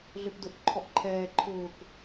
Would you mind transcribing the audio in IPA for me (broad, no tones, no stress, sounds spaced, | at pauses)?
ɮ ø p d ʊ ʔ ǃʰ ɔ ʔ ǃʰ ɛː ǃʰ ʊː k